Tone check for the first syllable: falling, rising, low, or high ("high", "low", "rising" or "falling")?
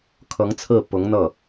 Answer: rising